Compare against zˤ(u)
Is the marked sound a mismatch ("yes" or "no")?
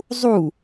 no